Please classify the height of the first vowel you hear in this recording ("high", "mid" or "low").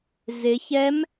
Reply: high